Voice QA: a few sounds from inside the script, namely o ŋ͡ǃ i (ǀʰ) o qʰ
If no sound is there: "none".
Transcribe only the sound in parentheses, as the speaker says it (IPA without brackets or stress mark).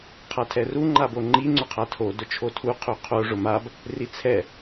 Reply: ŋ͡ǀ